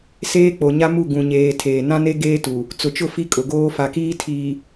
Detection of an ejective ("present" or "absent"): present